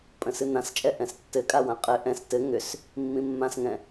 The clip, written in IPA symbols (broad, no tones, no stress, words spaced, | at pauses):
pʼə̃sɨnãst͡ʃʼɛ ʔɛ̃stːɘkʼa wãqʼɘ ʔɛ̃s tɘ ŋʏs | mːĩmːãsŋɛ̃